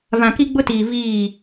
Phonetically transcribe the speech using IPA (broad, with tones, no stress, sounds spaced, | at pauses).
v ã˨ k i˦ ɡ͡b ʊ˦ t iː˨ v iː˦˨